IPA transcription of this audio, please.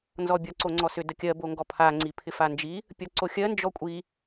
n z ɔ bʲ ɒ ǀ o ŋ͡ǀ ɔ s ʏ d ə kʲ ɜ b o ŋ ɡ ɔ pʰ a ŋ͡ǀ i pʰ ɪ f a n d͡ʒ i | pʲ ɒ ǀ o xʲ ɜ n d͡ʒ ɔ kʷʼ i

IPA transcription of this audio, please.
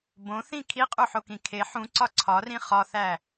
b õ θ ĩ kʰ i qʼ u ħ o k ĩ kʰ e ħ ũ ǀ ɒ ǀʰ ɒ r ĩ χ ɒ θ æ

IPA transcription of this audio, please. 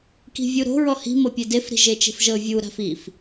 k i̤ vʲ u ɾ o̤ ɹ ɔ h i̤ m ɤ pʲ e d e f ɾ i̤ ʒ e t͡ʃ e̤ f ʒ ɤ vʲ u ɾ a̤ f i f

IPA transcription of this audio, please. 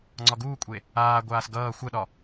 ŋ͡ǀ ɒ ɡ uː kʷʼ e | aː ɡʷ aː s ɡ ʌː xʷ ə ɗ ɒ

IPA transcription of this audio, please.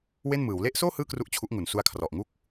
w e˥˩ n m ɯː˩˦ w l e˦˥ ʔ s oː˥˩ h ɯː˥˩ k r u˦˥ ʔ t͡ɕʰ u˦˥ ʔ ŋ u˩˦ n s u˦˥ a̯ kʰ r ɔ˨˩ ʔ ŋ u˥˩ k̚

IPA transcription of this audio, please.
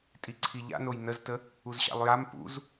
tʼ i ǀʰ i ʎ a̰ n o j n ə z t ə | u z ɕ a̰ lˠ j a m p ṵ z

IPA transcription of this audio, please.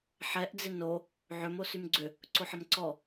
ħ ɛ ʔ d͡z ɪ n o | ʕ ʏ m o s y m ɡ͡ǀ ʏ | ǀ o ħ ə m ǀ ɔ

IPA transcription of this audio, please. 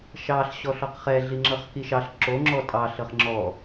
ʃ ɑ ɬ ɕ ɔ ɬ ɔ q χ ɛ ɮ i ŋ͡ǁ ɤ χ k i ʃ ɑ ɬ ǁ o ŋ͡ǁ ɔ tʼ ɑ ɬ ɤ χ ŋ͡ǁ ɔ

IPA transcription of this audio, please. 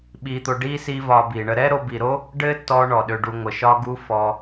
ɓ i˧ t̪ o˧ ɖ i˦ s i˦ v ɒ˧ b i˨ ɳ ə˦ ɾ ɛ˦ ɾ o˧ b i˨ ɾ o˦ | ɖ ɘ˦ t ɔ˦ ɳ ɔ˨ ɗ ø˧ ɖ u˧ ŋʷ ə˨ ʃ ɒ˦ ɡ u˦ f ɔ˦

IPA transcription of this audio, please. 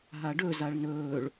ɦ a ɖ ɵ z a ɭ n ɵː ɭ

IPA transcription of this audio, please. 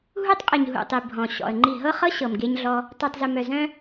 ɦ u˦ tˤ qʼ ɨ˨ ɲ ɦ ṵ˨ tˤ i˨ bʱ ɔ̃˨ ɕ ɔ̰˨ ə̯ ŋ͡ǃ i˦˨ ɦ ɤ˦ χ ɤ˦ ɕ ɤ˨ m ɡ e˦ ɲ ɮ ɔ˦ | tˤ i˨ tˤ z ɨ˨ m œ˨ z œ̃˦

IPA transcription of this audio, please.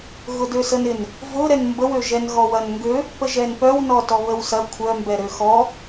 ɣ ʊ d ø s ə n ɪ n | v ʊ ɾ ɛ n m b ə w ø ʒ ɛ n ɣ ɔ w ɐ n ŋ ɡ ø | p ə ʒ ɛ n p œ w n ɔ t ɔ β ə w s ɐ kʷʰ œ m b ɛ ɾ ø x ɔ

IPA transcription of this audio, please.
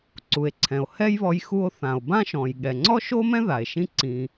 ǀ u˩ e̯ ǀʰ ɛ̃˩ o̯ h ɛ˥ j β ɔ˧ j x u˧ o̯ θ ã˩ o̯ b ã˥ ʃ ɔ̃˩ j ɠ ɛ˩ ŋ͡ǀ ɔ˥ ʃ o˥ m ɛ̃˥ ð a˩ e̯ ʃ ĩ˥ ǀ ĩ˧

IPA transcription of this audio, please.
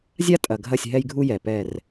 zʲ a˦ tʼ ɐ˨ ɡʱ ɐ˦˨ sʲ ɦ ɛ˦ j ɡʱ u˦ j ɛ˨ p ɛ˦˨ r

